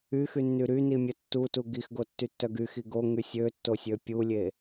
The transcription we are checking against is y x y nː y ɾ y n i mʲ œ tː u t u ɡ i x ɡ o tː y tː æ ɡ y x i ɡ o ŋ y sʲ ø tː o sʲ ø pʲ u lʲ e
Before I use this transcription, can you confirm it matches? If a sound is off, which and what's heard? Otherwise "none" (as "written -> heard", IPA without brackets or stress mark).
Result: æ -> œ